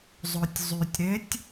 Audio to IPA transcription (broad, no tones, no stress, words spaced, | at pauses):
zˤotʲzˤytʲɾetʲ